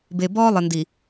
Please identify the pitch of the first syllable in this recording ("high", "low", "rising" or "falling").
low